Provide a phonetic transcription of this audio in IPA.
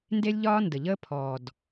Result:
n d e˦ lʲ ʎ ɒː˦ n d ə˨ ʎ əː˦ pʰ ɔː˨ d

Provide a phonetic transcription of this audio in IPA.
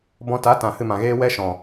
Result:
b ɔ̃˧ t a˨˦ t ã˨ h ɨ˧ m ã˨ ɣ eː˦ w ɛ˦ ʃ ɔ̃˨

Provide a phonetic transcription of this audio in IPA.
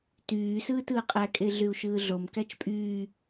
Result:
t yː s ɯː t ɯː qʼ æ kʼ e ɮ y u̯ ʃ ɯː ɮ o m k æ t͡ʃ pʼ yː

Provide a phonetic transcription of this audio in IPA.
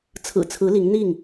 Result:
t͡sʰ ɹ̩˨˩ t͡sʰ ɹ̩˨˦ l i˨˦ ŋ n̪ i˥˨ ŋ

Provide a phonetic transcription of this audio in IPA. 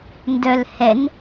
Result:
n d œ l h ɛ n

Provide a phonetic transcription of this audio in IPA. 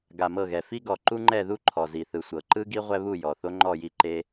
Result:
ɡ a˨ m ɤ˦˨ ɣ ɛ˨ f i˦ ɡ ɔ˨ ǃ u˦ ŋ͡ǃ ɛ˦˨ ð u˦ ǃʰ ɔ˨ z i˨ θ ɯ˨ sʷ ɤ˨ ǃ ɯ˦ ɡ i˦ ʁʷ ɛ˦ β u˦˨ j ɔ˨ θ o˦ ŋ͡ǃ ɔ˦˨ j i˦˨ ǃ e˦

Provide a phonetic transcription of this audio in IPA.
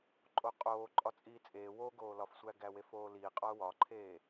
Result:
ǃʼ o qʼ oː ǃʼ ɒ t͡sʼ iː t͡sʼ eː w o ɡ oː l ɒ f sʷ æ ɡ æ w e f oː l iː qʼ ɒ ʊ̯ w ɒ ǃʰ eː

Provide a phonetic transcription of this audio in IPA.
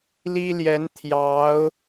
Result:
l i˥ l j ɛ˧˥ n t̪ʰ j ɑ˧˥ ʊ̯

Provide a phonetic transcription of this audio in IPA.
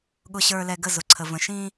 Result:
ɠ ʊ˨ ɕ ə˞˨ l ɛ˨ ɡ ə˦˨ z ʊ˨ ǀʰ ə˨ v ə̃˨ ʃ ĩ˦

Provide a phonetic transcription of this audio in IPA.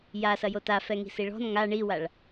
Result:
j a s ɐ j o t a f ɛ ŋ i̤ s i ɭ ɔ̤ n ŋ a ɳ i w a ɭ

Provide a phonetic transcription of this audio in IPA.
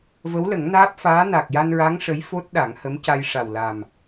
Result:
v ə˧˥ w l ə˨˩˦ ŋ n aː˦˥ p̚ f aː˧˥ n a˨˩ k̚ j a˧ n ɹ a˧˥ ŋ ʂ ə˧˥ j f o˦˥ t̚ ɗ a˨˩˦ ŋ h ə˧˥ m c a˧ j ʂ a˨˩ w l a˨˩ m

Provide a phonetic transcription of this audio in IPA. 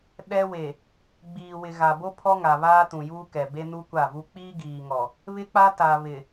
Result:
ɗ ɛ˦ w e˨ | ɡ͡b iː˨ w ɪ˨ ɣ a˨ b o˦ pʰ ɔ˦ ŋ a˨ β aː˦ t ũ˨ j uː˦ k ɛ˨ b e˦ n u˦ kʷ a˦˨ v u˦ k͡p iː˦ ɡ iː˨ ŋ ɔ˨ | β ɪ˦ k͡p a˦ t a˨ β ɪ˨

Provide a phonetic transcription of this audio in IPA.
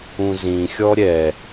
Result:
ũ z ĩ xʲ ɔ ɾʲ ɛ

